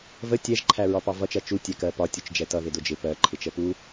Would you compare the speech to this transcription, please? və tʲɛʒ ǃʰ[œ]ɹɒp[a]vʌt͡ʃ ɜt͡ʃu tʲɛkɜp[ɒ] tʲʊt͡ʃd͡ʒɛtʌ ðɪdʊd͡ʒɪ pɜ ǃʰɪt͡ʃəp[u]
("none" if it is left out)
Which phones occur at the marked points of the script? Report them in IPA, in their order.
æ, ɑ, ɒ, u

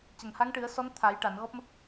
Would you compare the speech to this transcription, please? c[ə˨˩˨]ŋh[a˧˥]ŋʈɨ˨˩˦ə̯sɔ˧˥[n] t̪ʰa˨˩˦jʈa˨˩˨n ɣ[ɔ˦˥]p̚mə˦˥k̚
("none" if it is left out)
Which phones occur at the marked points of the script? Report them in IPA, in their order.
ə˨˩˨, a˧˥, n, ɔ˦˥

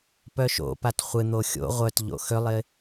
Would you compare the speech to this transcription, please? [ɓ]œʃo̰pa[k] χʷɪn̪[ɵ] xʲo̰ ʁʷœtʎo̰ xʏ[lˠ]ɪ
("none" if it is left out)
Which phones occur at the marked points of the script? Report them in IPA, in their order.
p, t, o, lˠ

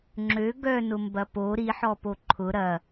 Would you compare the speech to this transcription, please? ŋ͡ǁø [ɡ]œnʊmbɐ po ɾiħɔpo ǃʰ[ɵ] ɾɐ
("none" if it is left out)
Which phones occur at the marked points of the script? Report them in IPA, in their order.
ɡ, ʊ

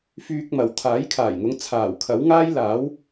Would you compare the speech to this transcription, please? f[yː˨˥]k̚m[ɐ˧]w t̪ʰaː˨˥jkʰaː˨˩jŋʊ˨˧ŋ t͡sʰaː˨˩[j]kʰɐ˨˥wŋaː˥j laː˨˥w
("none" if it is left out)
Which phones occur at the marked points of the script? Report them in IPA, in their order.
yː˧, ɐ˨, w

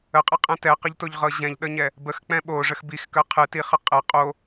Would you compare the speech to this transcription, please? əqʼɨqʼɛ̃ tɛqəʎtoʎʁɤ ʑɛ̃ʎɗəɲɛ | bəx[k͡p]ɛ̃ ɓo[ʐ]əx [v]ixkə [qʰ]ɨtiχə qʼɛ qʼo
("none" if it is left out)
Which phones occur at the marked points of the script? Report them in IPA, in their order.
k͡p, ʐ, b, qʰ

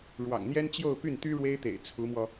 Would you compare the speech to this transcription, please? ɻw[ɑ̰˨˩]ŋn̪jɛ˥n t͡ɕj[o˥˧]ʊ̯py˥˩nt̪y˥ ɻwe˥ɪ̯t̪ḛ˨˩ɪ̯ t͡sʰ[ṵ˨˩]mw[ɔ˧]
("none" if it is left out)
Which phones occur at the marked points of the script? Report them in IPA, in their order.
ɑ̰˨˩, o˥˧, u˧˥, ɔ˧

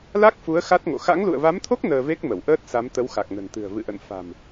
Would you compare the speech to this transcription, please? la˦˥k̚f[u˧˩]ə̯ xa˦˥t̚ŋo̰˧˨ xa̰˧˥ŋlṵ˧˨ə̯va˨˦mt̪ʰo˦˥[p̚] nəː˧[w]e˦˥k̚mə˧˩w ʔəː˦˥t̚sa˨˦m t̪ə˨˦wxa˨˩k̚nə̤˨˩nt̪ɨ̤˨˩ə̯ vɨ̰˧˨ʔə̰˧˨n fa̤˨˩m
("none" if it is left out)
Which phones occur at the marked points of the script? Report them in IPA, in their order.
u˨˦, k̚, v

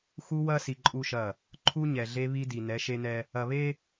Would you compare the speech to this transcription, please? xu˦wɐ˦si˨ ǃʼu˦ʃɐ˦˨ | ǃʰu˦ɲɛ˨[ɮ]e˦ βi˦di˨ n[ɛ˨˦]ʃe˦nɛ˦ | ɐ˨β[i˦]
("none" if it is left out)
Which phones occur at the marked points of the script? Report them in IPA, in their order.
ɮ, ɛ˨˦, e˦

